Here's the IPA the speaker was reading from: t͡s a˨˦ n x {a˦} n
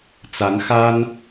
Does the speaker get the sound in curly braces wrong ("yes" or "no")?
no